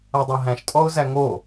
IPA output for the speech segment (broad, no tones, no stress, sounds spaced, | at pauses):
a dˤ o ɦ æ̃ ʃ tʼ ɔ ʊ̯ z æ ŋ o